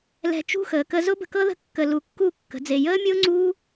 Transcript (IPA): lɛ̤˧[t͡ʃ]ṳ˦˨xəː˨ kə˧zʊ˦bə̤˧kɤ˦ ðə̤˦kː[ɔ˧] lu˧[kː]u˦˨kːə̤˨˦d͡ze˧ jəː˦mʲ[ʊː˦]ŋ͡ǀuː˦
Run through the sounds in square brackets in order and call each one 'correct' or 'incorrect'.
correct, incorrect: ə˧, correct, correct

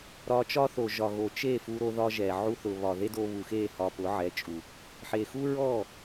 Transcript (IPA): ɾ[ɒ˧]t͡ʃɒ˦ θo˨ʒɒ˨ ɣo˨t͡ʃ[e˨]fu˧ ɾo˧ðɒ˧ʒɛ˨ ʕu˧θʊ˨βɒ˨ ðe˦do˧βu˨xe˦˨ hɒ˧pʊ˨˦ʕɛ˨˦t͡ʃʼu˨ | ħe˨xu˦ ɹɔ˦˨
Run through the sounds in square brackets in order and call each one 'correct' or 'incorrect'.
correct, incorrect: e˦˨

